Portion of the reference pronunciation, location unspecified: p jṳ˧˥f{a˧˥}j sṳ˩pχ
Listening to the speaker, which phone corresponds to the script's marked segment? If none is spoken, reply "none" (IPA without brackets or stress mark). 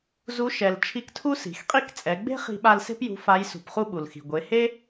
a˧˥